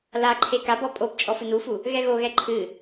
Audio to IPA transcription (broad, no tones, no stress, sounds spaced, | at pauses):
l a ǃʰ e k a b ɔ pʼ o b t͡ʃʼ ɔ f ɨ n u f u | ɣ ɛ ɣ o ɣ ɛ ǃʰ ɨ